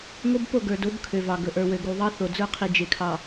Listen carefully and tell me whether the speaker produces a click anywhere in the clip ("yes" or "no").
no